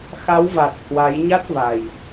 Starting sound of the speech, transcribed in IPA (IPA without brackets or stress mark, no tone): x